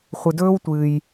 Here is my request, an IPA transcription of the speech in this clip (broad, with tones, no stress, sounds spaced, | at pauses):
χʷ ɨ˩ d ɵː˥ w tʷ ɨː˩ j